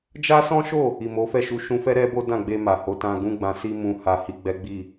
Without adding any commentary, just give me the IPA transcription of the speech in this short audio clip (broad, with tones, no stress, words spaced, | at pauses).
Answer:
d͡ʒa˦sɔ̃˦ʃo˦˨ | i˨mo˨˦fɛ˦˨ ʃu˧ ʃũ˧fɛ˦ ɾɛ˦bo˦dã˦˨ɡ͡be˧ ma˨ho˨˦ tã˧ɡũ˦ɡ͡bã˧ si˦mũ˧ ha˨ hi˧ɡ͡bɛ˦ɡ͡bi˦˨